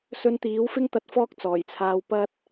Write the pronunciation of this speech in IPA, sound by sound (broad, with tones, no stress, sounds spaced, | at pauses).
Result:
s ɵ˧ n t̪ iː˨˥ w f ɪ˥ ŋ t̪ ɐ˧ t̚ f ɔː˥ k̚ t͡s ɔː˨˩ j t͡sʰ aː˧ w p ɐ˥ t̚